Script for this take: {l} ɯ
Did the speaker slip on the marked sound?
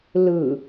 no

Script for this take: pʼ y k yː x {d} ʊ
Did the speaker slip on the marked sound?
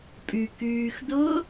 no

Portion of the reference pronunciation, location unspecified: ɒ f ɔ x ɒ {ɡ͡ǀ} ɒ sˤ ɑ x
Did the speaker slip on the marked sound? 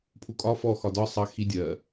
yes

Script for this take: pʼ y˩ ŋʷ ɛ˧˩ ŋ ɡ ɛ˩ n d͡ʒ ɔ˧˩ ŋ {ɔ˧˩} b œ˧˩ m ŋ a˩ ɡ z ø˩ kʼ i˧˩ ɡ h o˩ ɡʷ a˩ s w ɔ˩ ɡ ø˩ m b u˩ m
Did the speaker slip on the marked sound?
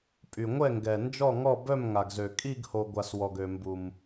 no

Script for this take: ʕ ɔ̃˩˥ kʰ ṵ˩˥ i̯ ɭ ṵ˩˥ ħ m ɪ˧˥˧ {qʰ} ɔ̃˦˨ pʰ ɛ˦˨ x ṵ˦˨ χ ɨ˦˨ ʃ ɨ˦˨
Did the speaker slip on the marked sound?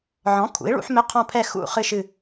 no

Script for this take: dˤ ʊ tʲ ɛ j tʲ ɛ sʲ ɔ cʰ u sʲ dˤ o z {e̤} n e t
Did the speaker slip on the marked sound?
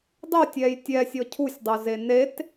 yes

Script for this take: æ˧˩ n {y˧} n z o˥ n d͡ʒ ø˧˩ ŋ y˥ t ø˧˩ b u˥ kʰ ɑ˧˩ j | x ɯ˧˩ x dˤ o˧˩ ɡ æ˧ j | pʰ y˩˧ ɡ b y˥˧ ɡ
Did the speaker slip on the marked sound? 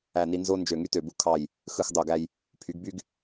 yes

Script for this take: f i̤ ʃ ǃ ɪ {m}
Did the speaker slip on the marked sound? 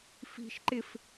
yes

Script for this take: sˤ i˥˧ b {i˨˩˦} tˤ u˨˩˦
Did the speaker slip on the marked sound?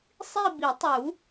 no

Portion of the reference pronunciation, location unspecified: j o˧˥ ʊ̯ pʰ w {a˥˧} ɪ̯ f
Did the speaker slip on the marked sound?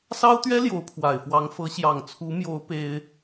yes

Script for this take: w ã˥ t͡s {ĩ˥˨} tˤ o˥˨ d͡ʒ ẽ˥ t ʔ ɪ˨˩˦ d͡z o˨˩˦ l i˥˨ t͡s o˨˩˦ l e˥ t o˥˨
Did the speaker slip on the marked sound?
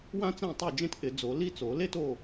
yes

